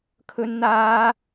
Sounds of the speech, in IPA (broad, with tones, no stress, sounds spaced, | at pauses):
kʰ ɵ˧ n n̪ aː˧